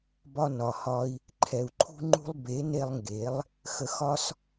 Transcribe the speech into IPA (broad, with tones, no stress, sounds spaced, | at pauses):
b ɒ˧ n ɒ˨ h ɒ˧ i̯ | ǃʰ ɛ˨ u̯ ǃʰ ṳ˧ ŋ͡ǃ ṳ˧ lˠ b e˨˦ n e˧ lˠ ŋ ɡ e˨˦ lˠ | x ə˧ x ɒ˦ s